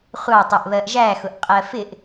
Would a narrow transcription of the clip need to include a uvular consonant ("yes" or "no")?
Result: yes